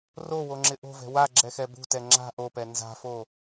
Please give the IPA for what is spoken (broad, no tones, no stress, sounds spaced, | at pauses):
r o w o ŋ͡ǁ ɪ ʔ o̤ v ɛ̤ w a ɡ͡ǁ ɛ x ɛ b ṳ t ɛ ŋ͡ǁ a̤ ʔ o p ɛ n z a̤ f o